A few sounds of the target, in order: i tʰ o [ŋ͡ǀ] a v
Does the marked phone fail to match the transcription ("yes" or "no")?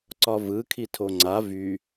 no